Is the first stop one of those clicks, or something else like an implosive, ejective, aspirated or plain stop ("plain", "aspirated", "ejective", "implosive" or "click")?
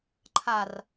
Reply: click